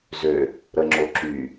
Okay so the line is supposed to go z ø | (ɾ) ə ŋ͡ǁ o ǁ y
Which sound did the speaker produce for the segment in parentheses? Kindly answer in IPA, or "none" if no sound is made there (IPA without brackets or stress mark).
ɾ